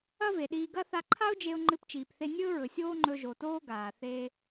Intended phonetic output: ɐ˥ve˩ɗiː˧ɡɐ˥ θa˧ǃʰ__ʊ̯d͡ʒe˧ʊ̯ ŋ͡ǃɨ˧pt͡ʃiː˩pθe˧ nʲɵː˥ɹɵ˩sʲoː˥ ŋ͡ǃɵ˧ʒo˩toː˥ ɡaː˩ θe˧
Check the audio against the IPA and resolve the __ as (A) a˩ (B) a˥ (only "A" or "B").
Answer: B